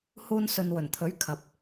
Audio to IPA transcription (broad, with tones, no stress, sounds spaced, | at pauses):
h uː˧ n s ɵ˨ n w ɵ˨˩ n t̪ʰ ɵ˨˥ ɥ kʰ ɐ˨ p̚